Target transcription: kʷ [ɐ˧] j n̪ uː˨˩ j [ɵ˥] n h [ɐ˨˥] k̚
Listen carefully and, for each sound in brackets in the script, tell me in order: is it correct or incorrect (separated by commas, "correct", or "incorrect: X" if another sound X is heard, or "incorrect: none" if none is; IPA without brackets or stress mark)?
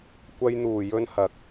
correct, incorrect: ɵ˧, incorrect: ɐ˨